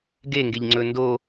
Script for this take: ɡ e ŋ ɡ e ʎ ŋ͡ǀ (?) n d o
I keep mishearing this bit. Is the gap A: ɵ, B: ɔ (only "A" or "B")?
A